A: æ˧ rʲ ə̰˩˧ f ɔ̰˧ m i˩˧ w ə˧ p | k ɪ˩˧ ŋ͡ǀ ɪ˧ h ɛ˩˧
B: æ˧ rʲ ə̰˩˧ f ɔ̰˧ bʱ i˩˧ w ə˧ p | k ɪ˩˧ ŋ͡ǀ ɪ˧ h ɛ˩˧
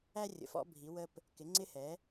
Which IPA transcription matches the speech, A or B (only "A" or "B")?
B